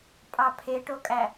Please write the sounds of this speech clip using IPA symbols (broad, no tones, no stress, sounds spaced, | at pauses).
pʼ ɑ pʰ e ʈ o kʼ æ